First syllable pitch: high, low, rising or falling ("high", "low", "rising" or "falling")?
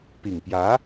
low